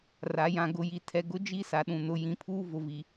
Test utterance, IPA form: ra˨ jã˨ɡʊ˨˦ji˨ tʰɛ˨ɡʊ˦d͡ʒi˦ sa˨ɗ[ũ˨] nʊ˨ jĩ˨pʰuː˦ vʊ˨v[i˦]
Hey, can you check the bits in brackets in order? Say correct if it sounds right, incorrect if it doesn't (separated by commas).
correct, incorrect